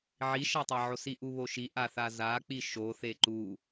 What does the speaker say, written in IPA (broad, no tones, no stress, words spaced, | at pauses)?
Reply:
ʕiʃatˤaʕos iʔuβoʃi ʔaθazak͡pi ʃoθe ǃu